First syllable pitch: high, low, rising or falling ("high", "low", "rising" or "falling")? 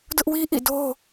high